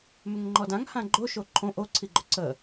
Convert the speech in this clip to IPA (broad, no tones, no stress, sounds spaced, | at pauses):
m ʏ ŋ ŋ͡ǃ ɔ d ã ŋ h ã ɡ͡ǃ o ʃ o ǃʰ õ ʔ o ǀʰ i ɡ͡ǃ ʏ ǀ ə